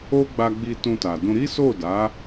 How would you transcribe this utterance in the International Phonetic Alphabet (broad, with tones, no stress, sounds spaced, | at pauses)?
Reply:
o˦ ɡ͡b a˧ ɡ͡b i˧ t ũ˧ t a˨ d ũ˧ ɾ i˦ s o˦˨ d a˨˦